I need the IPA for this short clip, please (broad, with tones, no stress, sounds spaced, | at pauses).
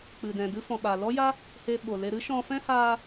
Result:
k͡p ɨ˨ d ɛ̃˨ d ɨ˧ f ɔ̃˨ ɓ a˨ l ɔ˦ j a˦ | h e˧ ɓ o˨ l e˧ ɾ ɨ˦ ʃ ɔ̃˧ f ɛ̃˦ h aː˧